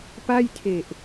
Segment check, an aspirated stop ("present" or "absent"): present